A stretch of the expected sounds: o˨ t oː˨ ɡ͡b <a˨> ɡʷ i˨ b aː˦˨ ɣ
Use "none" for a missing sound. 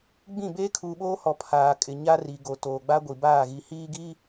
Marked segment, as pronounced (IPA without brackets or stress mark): a˦